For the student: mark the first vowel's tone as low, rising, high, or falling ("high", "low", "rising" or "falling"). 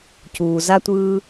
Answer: low